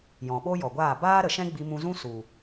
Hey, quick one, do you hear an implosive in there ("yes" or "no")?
yes